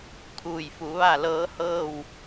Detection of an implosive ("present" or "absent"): absent